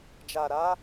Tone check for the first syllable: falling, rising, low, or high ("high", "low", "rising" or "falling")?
low